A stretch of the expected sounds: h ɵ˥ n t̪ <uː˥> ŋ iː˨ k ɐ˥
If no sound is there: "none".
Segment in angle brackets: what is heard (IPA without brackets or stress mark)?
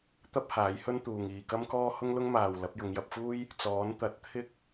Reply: uː˨